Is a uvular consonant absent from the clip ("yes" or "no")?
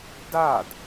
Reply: yes